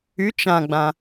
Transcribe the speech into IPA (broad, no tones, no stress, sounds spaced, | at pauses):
y t͡ʃ ã ɡ͡b ã